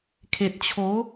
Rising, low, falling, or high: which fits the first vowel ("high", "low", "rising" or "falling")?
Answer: low